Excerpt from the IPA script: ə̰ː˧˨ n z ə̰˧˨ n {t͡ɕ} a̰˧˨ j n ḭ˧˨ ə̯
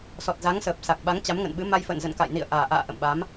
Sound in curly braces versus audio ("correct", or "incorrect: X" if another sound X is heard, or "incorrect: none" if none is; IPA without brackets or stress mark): incorrect: k